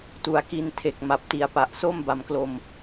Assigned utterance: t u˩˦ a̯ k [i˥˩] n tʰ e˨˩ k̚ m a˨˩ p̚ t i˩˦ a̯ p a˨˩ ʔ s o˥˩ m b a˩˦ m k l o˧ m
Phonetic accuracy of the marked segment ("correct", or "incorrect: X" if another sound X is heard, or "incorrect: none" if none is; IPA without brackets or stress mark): incorrect: i˧